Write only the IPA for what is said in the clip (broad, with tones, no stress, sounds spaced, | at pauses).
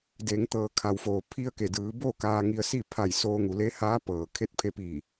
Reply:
d e˩˧ ŋ t̪ ɤː˩ kʰ a˩ w f oː˩ pʰ i˧ ə̯ k e˩ d ɯː˩˧ b o˥˨ k aː˧ ŋ i˧ ə̯ s i˥˨ pʰ a˧˩ j s oː˧ ŋ u˩˧ l e˧˥ h aː˧˥ p ɤː˩ kʰ e˧˥ t̚ pʰ e˧ p iː˧˩